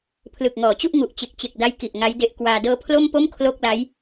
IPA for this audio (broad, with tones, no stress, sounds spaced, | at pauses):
pʰ l ɯ˨˩ k̚ ŋ ɔː˩˦ t͡ɕ u˥˩ ʔ ŋ u˨˩ ʔ t͡ɕ e˨˩ k̚ t͡ɕ e˨˩ k̚ d a˦˥ j k i˨˩ ʔ ŋ a˦˥ j d e˦˥ ʔ k w aː˧ d ɤː˦˥ pʰ l o˥˩ m p o˥˩ m kʰ l o˥˩ k̚ l a˦˥ j